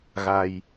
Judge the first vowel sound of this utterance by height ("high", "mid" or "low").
low